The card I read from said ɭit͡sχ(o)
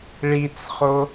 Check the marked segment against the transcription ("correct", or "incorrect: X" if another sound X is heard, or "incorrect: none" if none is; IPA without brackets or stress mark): correct